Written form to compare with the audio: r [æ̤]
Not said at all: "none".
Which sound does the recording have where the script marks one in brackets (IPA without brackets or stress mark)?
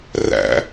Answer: æ̰